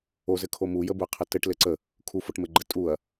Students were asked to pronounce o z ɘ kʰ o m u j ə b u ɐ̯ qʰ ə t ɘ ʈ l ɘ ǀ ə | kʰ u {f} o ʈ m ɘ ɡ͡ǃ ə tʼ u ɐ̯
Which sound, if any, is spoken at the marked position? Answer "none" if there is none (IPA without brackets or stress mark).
f